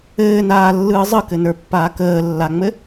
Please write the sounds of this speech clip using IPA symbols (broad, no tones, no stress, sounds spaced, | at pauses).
ɘː n aː lː ɯː zˤ ɯ k ɘ n ə˞ pː aː k əː lː a ŋ͡m ɘ